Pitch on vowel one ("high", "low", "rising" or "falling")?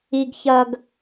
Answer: high